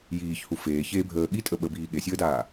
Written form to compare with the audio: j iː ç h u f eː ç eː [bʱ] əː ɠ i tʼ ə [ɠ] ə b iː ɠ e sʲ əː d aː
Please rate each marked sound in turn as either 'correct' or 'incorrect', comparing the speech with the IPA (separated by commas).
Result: correct, incorrect